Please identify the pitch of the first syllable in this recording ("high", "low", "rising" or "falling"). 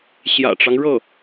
low